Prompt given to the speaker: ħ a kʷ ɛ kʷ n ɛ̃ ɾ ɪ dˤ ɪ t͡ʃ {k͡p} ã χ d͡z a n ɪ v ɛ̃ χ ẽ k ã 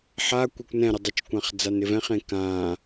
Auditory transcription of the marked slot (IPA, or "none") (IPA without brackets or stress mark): kʷ